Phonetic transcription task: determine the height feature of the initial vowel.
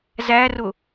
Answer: low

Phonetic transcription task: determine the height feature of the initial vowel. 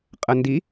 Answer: low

